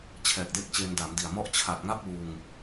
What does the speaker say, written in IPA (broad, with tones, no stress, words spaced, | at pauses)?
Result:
t͡ɕʰɛː˨˩k̚de˦˥k̚t͡ɕeː˧n da˩˦mdi˨˩a̯ mɔ˦˥ʔt͡ɕʰa˨˩t̚ŋa˥˩p̚ wuː˧ŋ